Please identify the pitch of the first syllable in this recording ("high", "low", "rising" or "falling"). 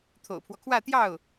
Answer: low